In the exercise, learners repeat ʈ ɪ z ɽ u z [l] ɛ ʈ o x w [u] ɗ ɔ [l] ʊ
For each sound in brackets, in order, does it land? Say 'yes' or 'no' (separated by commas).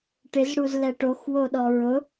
yes, no, no